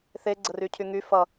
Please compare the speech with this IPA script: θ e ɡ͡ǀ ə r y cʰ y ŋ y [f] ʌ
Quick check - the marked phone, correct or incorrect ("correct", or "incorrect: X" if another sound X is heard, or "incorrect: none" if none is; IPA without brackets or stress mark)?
correct